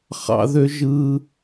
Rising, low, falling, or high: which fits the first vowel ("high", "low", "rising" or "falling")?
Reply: high